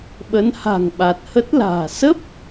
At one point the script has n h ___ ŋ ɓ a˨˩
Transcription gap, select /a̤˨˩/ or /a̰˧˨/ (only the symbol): a̤˨˩